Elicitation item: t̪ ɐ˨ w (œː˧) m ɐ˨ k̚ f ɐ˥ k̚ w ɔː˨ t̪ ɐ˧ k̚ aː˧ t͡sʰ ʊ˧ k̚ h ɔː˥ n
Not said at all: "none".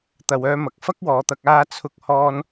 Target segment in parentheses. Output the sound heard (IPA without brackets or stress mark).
œː˧